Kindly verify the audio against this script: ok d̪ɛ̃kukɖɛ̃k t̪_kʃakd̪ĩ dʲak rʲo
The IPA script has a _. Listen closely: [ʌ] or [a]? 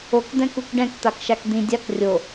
a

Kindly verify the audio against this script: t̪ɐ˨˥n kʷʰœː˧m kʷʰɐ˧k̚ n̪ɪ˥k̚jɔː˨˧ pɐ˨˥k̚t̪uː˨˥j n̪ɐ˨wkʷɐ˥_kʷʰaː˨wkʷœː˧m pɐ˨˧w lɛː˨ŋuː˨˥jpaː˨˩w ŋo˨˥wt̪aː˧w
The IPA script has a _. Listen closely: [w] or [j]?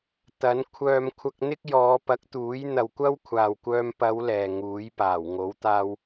w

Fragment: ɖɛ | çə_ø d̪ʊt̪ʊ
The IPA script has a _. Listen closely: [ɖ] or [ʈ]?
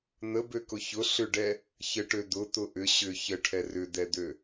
ʈ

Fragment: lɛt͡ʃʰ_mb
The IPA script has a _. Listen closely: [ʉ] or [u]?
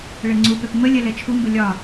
u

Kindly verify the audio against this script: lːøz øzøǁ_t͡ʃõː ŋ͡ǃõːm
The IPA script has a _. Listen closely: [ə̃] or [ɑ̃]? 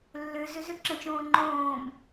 ə̃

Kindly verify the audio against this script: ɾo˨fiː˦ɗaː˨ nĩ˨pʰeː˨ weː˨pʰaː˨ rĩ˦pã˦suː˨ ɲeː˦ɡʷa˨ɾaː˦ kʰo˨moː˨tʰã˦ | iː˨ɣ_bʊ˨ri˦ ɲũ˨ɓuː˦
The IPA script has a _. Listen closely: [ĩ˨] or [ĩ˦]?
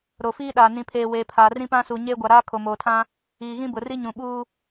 ĩ˦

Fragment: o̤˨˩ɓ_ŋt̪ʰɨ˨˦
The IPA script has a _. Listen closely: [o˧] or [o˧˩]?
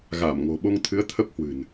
o˧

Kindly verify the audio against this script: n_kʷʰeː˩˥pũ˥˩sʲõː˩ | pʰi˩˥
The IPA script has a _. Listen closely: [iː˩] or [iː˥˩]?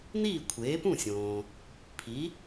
iː˥˩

